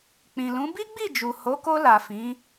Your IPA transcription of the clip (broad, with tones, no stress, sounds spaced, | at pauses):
k͡p ĩ˨ l ũ˨˦ b i˦ ɡ͡b i˦˨ d͡ʒ u˨ h o˨˦ k o˧ l a˨ f ĩ˨˦